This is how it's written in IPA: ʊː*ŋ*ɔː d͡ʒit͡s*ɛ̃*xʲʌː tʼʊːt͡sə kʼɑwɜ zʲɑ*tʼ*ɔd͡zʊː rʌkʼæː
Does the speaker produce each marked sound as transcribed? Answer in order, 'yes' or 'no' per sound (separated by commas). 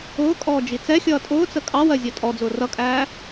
no, no, yes